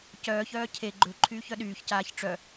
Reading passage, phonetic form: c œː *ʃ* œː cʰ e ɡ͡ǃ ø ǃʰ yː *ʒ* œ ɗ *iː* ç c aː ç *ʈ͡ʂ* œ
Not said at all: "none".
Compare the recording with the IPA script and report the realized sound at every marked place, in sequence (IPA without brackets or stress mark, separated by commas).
ç, ç, yː, ʈ͡ʂ